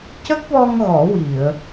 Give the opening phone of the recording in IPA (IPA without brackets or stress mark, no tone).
c